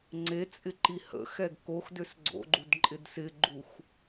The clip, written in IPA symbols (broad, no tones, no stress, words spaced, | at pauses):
ŋ͡ǀet͡sʼɪ ǃihə̰xɛɡ kox dʏsɡ͡ǀo̰ɡ͡ǃud ǃʼɪdsɪɡ͡ǃux